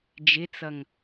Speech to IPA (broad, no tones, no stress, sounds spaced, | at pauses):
d͡ʒ ɪ t͡s ʌ ŋ